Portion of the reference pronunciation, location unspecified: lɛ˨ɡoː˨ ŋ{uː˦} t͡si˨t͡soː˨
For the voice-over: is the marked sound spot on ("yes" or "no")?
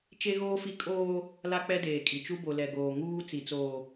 yes